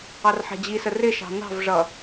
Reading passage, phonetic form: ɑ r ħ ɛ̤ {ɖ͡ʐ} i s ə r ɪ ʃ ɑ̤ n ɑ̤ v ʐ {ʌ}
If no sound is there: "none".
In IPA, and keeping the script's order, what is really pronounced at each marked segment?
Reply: d͡ʑ, ʌ

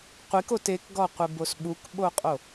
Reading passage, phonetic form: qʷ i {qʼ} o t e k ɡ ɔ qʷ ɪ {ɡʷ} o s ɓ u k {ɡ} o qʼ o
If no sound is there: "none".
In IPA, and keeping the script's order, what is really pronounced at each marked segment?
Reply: k, b, ɓ

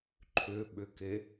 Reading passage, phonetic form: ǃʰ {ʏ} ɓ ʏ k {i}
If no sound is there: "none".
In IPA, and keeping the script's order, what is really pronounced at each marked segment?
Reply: ʏ, e

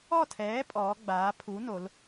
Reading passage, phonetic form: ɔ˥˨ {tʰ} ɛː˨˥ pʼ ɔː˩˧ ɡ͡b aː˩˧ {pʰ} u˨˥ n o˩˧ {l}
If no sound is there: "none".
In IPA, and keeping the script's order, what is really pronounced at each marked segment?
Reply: tʰ, pʰ, l

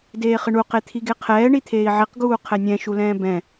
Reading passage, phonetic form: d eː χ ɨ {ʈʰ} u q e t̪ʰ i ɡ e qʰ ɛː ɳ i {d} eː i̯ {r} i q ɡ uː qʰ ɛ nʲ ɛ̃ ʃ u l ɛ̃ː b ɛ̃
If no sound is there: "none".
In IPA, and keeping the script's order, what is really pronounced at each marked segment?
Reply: ɳ, t̪ʰ, ʕ

